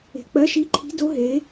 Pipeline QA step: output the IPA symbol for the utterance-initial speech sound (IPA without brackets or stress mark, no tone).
e̤